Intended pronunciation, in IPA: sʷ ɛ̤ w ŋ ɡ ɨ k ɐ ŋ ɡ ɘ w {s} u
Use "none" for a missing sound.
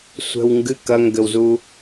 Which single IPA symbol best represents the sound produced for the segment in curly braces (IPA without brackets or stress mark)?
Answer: z